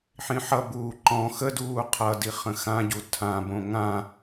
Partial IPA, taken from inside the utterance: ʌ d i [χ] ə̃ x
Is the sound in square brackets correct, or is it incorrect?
correct